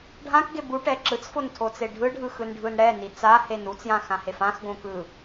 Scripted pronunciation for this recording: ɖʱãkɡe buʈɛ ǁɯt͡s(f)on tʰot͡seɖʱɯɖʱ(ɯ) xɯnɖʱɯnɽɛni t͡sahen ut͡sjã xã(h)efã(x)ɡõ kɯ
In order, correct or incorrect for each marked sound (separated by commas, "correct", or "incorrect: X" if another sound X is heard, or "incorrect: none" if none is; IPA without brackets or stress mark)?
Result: correct, correct, correct, correct